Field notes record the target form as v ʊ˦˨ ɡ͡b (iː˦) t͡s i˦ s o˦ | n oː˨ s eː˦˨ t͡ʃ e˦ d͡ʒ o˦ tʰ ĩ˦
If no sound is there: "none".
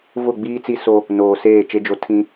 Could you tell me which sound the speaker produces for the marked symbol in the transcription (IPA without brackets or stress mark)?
iː˦